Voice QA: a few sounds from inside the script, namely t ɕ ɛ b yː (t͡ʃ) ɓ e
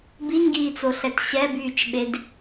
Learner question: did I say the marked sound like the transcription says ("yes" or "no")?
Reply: yes